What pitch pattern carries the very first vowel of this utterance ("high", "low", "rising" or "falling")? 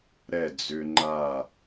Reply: falling